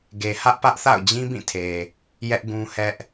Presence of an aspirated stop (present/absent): present